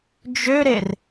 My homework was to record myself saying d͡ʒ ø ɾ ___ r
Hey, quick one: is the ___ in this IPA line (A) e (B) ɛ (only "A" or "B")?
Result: A